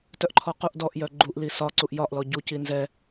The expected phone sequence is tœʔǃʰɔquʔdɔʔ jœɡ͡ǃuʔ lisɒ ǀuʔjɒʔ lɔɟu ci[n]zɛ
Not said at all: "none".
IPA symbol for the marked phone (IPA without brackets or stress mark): n